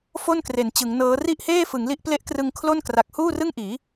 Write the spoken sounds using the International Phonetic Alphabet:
f o˥˩ n k r e˩˦ n t͡ɕ ɯ˩˦ ŋ n ɤː˦˥ r i˥˩ ʔ h eː˥˩ f ɯ˩˦ ŋ l i˦˥ ʔ p l e˦˥ ʔ k r ɯ˧ ŋ kʰ l o˥˩ n k r a˨˩ k̚ h uː˥˩ r ɯ˥˩ ŋ ʔ iː˩˦

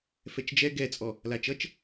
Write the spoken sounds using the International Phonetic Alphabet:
f ɛ t͡ʃ d͡ʒ ɛ ɡ ɛ t͡sʼ ɔ | l a t͡ʃ ʌ t͡ʃ

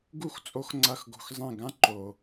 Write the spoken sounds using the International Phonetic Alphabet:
ɡ u˦˨ x t͡sʼ o˧ x ŋ͡ǀ ɐ˦˨ x ɡ o̤˧ x zˤ ẽ˦˨ ɡ ã˦ ǃ o˨

